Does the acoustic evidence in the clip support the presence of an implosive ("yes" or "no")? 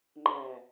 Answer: no